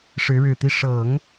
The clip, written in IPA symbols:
ʂ ɻ̩˧˥ ɻ ɻ̩˨˩ t̪ i˥˩ ʂ ɤ˨˩˦ ŋ

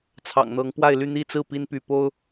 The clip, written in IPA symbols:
t͡sʰ ɑ̰˨˩ ŋ n̪ ɤ˨˦ ŋ p w a˥˨ ɪ̯ l y˥˨ n̪ i˥˨ t͡s ɹ̩˥˨ p i˦ n p y˨˦ p o˦ ʊ̯

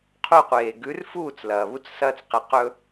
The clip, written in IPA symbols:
qʰ u˧ qʷ eː˨ ɡ ʉ˨˦ r f uː˦˨ t͡s l ɐː˨ β u˦ t͡s s ɐː˦ t͡s q e˧ q ɵ˦

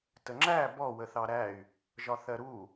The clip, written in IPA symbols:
t ə ŋ͡ǁ æ b ɔ w ə θ ɑ ɾ æ y̯ | ʒ ɒ θ ɜ ɾ u

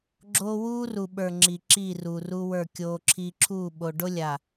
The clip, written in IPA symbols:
ɡ͡ǁ oː˦ w uː˦ r u˨ ɓ ə˞˨ ŋ͡ǁ i˨ ǁ i˦˨ r u˨ r u˦ w ə˞˦˨ kʲ oː˦ ǁʰ iː˦ ǁʰ uː˦˨ ɓ o˨ ɖ o˦ lʲ a˨

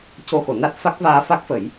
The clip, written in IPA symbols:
c o˧ x o˨˩˨ n a˦˥ t̚ f a˦˥ k̚ v aː˧ f a˦˥ k̚ f ə˨˩˦ j

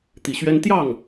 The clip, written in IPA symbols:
t̪ i˨˩ ɕ ɥ ɛ˥ n t̪ j ɑ˥˩ ŋ

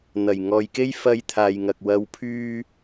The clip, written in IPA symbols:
n̪ ɐ˨˩ j ŋ ɔː˨ j k e˥ j f ɐ˧ j t̪ʰ aː˨ j ŋ ɐ˨ k̚ w ɐ˨˧ w pʰ yː˧

